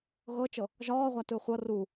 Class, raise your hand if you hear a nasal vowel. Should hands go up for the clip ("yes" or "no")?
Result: no